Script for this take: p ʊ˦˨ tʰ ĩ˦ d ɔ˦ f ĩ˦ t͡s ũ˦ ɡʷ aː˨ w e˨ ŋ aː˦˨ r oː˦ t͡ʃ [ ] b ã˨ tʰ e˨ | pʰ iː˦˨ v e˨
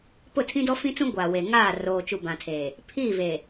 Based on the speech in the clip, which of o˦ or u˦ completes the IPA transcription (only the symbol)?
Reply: u˦